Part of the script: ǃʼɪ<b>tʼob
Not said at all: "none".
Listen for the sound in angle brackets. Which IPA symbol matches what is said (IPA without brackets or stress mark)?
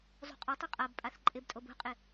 b